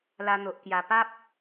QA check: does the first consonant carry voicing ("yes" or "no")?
yes